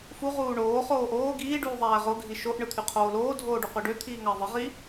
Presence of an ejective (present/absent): absent